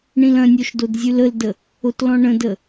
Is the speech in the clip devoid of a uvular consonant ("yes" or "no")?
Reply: yes